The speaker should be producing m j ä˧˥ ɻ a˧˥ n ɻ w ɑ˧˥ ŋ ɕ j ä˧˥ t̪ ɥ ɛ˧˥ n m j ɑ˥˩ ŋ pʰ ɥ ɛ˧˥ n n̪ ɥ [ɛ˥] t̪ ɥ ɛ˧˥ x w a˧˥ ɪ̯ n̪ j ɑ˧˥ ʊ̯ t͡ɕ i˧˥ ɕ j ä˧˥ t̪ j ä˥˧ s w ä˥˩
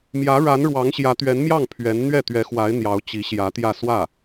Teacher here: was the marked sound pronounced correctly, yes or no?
no